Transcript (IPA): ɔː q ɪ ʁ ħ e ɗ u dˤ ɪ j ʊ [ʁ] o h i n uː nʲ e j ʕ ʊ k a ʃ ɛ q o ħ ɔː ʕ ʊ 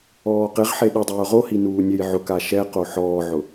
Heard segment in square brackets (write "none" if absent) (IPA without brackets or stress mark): ʁ